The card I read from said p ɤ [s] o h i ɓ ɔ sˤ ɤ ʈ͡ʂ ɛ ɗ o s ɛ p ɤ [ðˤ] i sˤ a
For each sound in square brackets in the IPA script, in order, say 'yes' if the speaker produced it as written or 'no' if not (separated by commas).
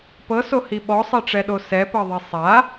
yes, yes